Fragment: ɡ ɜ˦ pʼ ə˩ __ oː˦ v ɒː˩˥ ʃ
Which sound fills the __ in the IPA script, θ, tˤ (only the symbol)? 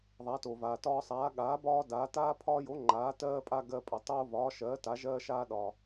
tˤ